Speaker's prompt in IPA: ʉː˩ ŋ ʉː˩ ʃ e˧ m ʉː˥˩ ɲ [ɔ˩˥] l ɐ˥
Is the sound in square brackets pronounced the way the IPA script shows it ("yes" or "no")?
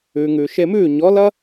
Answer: yes